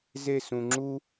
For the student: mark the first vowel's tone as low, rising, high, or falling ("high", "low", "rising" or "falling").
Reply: falling